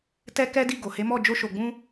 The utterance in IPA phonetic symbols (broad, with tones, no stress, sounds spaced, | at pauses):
t ɛ˦ k ɛ˦ d i˦˨ ɡ o˨ h e˨˦ m ɔ˦˨ d͡ʒ o˧ ʃ o˨ ɡ͡b ũ˧